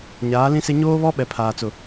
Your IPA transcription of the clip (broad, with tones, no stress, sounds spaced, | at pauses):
ɲ aː˨˦ l ĩ˦ s e˦ ɲ oː˦ β ɔ˦ ɓ ɛ˨ pʰ aː˨ t͡s ʊ˨